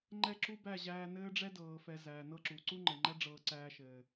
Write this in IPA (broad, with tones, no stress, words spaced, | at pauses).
ŋ͡ǃɛ˦˨ǁu˦bæ˦˨ ʑæː˧nɘː˦ɖ͡ʐɛ˦dɤː˨ fɛ˧zæː˨nɤ˦ǁu˨ ǀu˦ŋ͡ǃɘ˨ ŋ͡ǃæ˦ɖ͡ʐɤː˧ ǀæː˧ʃɘː˨